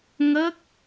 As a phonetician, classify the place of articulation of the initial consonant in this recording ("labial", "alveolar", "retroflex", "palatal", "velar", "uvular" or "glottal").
velar